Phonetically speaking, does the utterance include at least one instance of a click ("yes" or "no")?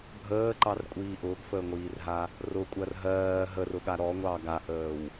yes